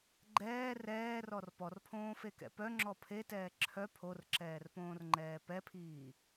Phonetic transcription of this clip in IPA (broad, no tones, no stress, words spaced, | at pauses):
ɡ͡ǃɛː rɛːrɔr pɔrpʰõːfekɛ̰ pœŋ͡ǁɔ pʰetɛː ǁʰœ pʰorǁɛːrpõːrŋ͡ǃɛː pɛpʰiː